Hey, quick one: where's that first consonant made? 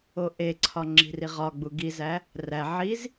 throat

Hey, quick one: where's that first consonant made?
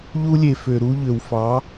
palate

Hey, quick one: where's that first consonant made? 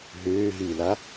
throat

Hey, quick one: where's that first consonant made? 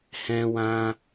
throat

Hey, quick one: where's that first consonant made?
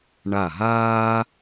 retroflex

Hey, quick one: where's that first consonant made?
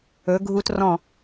velum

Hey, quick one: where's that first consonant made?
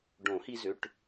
retroflex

